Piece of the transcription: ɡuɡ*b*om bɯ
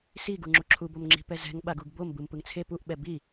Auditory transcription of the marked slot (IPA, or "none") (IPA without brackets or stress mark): b